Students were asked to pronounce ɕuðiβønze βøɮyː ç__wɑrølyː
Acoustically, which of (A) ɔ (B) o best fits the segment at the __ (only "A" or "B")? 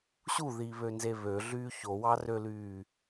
B